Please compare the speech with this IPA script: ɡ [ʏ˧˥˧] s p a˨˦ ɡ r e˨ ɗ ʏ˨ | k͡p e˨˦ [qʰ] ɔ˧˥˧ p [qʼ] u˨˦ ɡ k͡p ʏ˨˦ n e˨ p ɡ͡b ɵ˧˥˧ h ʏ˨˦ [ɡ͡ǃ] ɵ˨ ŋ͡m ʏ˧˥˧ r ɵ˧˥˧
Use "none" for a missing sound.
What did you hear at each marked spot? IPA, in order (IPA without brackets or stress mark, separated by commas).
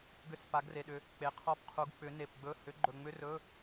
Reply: ʏ˧˥˧, qʰ, qʰ, ɡ͡ǃ